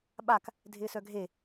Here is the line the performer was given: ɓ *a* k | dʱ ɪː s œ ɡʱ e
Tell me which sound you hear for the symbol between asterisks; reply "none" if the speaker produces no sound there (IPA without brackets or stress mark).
a